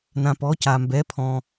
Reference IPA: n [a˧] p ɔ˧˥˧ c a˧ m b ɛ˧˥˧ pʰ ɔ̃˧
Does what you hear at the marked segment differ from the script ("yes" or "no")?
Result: yes